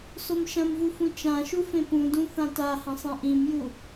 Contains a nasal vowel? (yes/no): yes